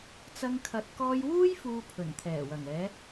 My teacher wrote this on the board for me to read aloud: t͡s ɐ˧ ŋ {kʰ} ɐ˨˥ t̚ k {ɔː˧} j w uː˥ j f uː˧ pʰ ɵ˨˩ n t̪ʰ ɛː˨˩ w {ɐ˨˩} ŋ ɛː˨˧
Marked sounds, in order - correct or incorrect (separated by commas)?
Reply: correct, correct, correct